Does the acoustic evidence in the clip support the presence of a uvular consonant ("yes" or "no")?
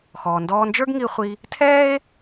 yes